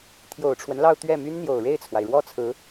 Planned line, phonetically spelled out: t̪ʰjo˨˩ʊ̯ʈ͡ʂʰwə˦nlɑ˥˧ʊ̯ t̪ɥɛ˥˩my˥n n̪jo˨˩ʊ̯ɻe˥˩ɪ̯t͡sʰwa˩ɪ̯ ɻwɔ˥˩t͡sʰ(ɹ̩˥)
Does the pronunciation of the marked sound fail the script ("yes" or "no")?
yes